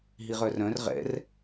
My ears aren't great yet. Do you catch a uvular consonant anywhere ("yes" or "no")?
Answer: yes